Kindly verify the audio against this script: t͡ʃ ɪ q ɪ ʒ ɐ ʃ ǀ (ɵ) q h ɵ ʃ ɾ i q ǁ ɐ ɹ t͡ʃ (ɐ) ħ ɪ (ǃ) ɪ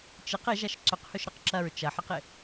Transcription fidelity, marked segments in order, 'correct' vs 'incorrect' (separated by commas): correct, correct, incorrect